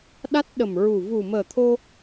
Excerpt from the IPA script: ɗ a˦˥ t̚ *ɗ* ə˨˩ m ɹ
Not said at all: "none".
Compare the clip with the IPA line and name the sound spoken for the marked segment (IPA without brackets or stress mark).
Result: ɗ